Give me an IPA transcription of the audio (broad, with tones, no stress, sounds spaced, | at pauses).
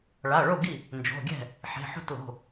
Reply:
ɭ a˩˧˩ ɭ o˥˩ ɡ i˥˩ | n d͡ʒ o̤˩˧˩ ɡʲ ɛ̤˥˩ | ħ e̤˩˧˩ ħ o̤˥˩ t l o̤˩˧˩